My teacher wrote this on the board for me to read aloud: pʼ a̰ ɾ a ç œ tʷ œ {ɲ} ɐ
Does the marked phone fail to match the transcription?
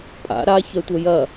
yes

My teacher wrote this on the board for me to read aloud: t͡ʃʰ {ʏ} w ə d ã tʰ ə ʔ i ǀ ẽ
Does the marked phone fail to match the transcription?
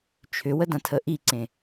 no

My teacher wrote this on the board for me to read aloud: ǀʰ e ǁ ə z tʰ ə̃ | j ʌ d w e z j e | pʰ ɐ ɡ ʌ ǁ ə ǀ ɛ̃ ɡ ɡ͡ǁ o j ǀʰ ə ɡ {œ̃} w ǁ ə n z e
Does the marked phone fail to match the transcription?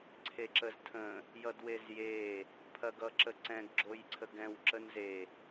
yes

